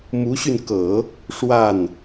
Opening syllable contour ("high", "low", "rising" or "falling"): rising